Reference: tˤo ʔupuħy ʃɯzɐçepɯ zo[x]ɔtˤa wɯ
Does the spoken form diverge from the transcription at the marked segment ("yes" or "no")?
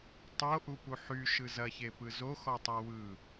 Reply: no